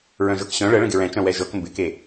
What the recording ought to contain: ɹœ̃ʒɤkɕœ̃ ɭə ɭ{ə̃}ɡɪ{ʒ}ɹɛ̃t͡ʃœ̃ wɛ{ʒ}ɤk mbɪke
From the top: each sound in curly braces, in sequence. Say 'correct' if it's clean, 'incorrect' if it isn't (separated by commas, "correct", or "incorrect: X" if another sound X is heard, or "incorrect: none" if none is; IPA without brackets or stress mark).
correct, incorrect: none, correct